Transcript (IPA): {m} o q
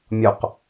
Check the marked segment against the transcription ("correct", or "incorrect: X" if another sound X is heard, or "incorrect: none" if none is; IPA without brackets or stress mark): incorrect: mʲ